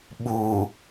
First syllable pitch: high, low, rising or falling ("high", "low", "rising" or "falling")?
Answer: low